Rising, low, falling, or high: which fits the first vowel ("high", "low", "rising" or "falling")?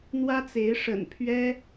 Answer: high